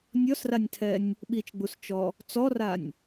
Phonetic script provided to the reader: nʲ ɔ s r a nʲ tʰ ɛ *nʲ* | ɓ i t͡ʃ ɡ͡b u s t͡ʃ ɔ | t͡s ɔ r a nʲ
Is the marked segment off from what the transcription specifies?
no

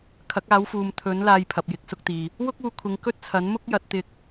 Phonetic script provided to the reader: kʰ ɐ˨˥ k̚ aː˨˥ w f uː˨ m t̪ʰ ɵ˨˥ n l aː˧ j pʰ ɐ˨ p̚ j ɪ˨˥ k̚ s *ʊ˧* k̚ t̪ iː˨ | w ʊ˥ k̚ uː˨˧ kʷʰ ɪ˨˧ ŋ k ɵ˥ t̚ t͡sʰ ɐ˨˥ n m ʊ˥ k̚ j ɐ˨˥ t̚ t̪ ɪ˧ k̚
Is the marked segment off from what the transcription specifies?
no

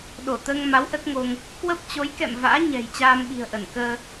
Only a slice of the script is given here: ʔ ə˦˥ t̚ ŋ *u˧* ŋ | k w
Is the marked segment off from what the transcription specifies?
yes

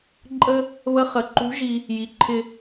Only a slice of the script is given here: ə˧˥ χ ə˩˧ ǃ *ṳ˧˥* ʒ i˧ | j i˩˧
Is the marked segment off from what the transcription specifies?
no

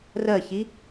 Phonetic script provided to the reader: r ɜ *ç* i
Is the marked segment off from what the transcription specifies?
no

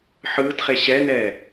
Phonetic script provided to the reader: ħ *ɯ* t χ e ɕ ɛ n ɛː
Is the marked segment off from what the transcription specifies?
yes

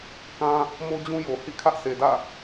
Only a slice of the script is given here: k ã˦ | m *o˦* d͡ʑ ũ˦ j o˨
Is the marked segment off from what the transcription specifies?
no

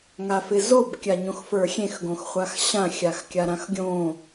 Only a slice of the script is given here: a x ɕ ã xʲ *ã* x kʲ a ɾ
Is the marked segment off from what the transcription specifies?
yes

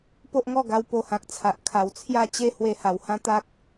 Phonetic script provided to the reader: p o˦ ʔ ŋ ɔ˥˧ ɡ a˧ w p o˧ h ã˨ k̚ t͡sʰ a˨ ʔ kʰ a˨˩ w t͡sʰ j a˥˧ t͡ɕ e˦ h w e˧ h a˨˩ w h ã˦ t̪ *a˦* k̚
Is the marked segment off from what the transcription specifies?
no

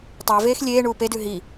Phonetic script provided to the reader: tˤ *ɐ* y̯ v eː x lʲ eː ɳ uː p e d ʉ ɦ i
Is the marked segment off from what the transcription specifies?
no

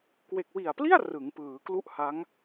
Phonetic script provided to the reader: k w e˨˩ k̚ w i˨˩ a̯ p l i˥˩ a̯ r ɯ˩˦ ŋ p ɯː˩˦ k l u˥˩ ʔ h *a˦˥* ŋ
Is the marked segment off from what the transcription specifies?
no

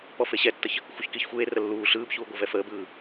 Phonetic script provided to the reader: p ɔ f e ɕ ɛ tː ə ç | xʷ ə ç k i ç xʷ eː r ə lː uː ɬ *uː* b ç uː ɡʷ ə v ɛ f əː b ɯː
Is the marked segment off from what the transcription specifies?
yes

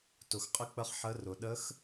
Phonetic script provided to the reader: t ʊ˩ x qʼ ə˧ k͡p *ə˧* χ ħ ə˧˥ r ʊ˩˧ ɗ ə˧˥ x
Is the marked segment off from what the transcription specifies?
no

